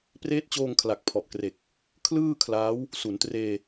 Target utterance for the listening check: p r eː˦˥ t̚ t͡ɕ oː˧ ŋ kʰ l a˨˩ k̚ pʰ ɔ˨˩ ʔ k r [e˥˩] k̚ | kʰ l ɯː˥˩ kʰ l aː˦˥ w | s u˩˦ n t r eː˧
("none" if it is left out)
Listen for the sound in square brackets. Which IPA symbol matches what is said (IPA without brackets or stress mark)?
e˨˩